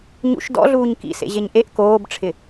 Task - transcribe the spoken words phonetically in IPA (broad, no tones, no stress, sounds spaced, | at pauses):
ɲ ṵ ʃ d ɔ̰ ɮ uː ɲ k ḭ s ḛ ʑ e ɲ ʔ e ʔ k oː b ʈ͡ʂʰ ɪ